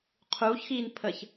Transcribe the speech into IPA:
qʰ uː ç x iː n pʰ əː ç

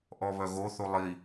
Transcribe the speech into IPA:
ʔ ɔ β œ ɣ o θ u lˠ i

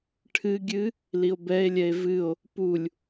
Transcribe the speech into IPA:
ʈʰ ɨ ɡʲ ɨ | l i o̯ b ɛ e̯ lʲ ɛ e̯ v ɨ o̯ | p u lʲ

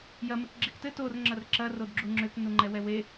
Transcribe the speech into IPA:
j ɐ m ɘ k ɡ͡ǁ e k t ɘ t o r ŋ͡ǁ ɐ r ǁ ɐ r o d ɡ͡ǁ u ŋ͡ǁ ʏ k n u ŋ͡ǃ ɛ w ɛ w e

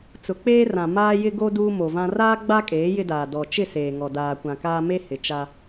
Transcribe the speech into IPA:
t͡s ʊ˨ k͡p eː˦ r ã˨ m aː˦ j ɪ˦ ɡ o˦ d uː˦ m o˨ v ã˦ r aː˦ ɡ͡b a˦ kʼ eː˨˦ j ɪ˦ d aː˨ d ɔ˨ t͡ʃ ɪ˦˨ s eː˨ ŋ ɔ˨ d aː˨ kʷ ã˨ k aː˦ m e˦ h ɪ˨ t͡ʃ a˦

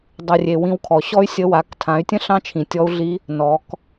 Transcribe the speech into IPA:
dˤ ʉ˩ rʲ e˩ w ĩ˧ w kʰ ɔ˩ ɕ ɔ˥ y̯ sʲ ə˧˥ w a˩˧ k tʰ ã˩˧ y̯ tʲ ə̃˥ ɬ ɑ̃˥ t͡ʃʰ ĩ˩ tʲ ɔ˧˥ u̯ ɮ i˧˥ | n ɔ˩˧ k

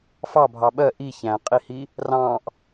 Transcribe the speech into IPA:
f ɑ bʱ ɑ ɓ ɜ ʔ i ç æ̃ qʼ i h i | r ɑ̃ ʔ

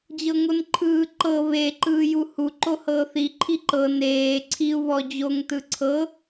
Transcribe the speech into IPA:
d͡ʑ ɤ ŋ o n ǃʰ ɯː ǃ ɤ β e ǃ ɯː j u h u ǃ o h ɤː θ i ǃʰ i ǃ ɤ n eː ǀʰ i u̯ β ɔ d͡ʑ o ŋ t ɯ ǀʰ ɤ

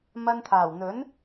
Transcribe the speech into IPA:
m ɐ˧ n t̪ʰ aː˨˩ w n̪ ɵ˨˥ n

